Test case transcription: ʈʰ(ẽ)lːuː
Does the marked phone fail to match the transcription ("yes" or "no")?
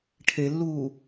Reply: yes